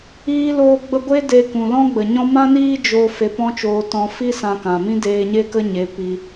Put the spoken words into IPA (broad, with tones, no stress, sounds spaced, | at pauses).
iː˦ l oː˦ ɡ͡b ə˦ ɡʷ e˦ d e˧ k ũ˨ l ɔ̃˦ ɡ͡b ə˨ ɲ ɔ̃˦ m ã˦ n iː˦ d͡ʒ o˧ f e˧ p ɔ̃˦ t͡ʃ oː˧ t ɔ̃˧ f i˦ s ã˧ k ã˨ m ĩ˦ d eː˧ ɲ e˦ k ə˦ ɲ e˨˦ p i˧